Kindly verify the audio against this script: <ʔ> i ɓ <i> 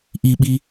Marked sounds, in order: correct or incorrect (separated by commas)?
correct, correct